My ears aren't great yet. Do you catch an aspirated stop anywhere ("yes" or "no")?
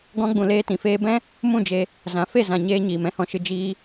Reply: no